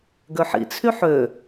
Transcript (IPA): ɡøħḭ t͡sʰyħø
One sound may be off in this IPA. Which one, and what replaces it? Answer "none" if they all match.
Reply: none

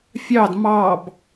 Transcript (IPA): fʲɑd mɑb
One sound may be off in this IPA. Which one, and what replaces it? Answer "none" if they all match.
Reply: none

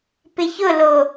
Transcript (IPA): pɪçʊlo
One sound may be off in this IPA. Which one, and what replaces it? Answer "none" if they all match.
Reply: none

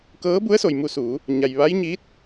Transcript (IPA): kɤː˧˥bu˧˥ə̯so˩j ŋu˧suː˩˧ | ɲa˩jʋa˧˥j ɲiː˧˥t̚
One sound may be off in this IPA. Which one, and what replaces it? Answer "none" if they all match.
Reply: ŋ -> m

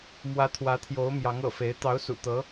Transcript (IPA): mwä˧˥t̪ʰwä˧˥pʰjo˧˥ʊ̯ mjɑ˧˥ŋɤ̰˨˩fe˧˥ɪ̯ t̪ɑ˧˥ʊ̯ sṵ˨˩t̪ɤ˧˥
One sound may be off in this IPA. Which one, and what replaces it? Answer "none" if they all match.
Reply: pʰ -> t̪ʰ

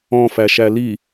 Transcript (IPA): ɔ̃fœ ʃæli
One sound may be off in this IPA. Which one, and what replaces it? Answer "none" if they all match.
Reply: œ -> æ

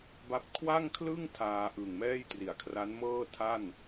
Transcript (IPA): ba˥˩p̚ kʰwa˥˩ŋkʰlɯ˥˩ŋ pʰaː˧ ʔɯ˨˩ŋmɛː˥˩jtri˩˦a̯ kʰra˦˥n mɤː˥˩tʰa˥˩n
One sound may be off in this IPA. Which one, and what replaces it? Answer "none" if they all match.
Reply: pʰ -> tʰ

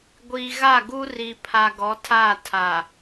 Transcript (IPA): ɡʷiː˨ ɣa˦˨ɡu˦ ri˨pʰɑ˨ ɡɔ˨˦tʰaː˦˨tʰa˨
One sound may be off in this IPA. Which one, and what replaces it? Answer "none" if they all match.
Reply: ɑ˨ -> a˨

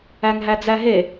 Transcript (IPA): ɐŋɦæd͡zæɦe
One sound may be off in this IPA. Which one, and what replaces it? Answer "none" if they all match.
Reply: ɐ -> æ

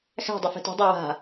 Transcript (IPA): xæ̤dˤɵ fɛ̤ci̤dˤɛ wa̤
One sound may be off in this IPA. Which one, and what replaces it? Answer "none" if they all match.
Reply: c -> t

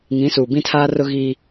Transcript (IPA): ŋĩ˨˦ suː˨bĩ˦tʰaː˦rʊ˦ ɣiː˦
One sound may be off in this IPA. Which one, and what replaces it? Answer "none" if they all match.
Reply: none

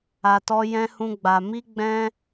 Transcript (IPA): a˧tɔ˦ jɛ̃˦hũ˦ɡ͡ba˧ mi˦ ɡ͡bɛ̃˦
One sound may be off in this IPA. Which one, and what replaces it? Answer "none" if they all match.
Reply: none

